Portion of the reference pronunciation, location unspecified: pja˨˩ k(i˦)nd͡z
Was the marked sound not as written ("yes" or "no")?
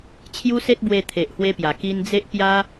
yes